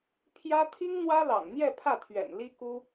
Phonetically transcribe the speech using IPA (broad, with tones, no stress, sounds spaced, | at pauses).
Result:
pʰ j ä˥ t̪ʰ i˥ ŋ n̪ w ä˥ l ɑ̰˨˩ ŋ n̪ j ɛ˥˧ pʰ ä˥˩ t̪ʰ ɥ ɛ̰˨˩ n l i˥ k u˥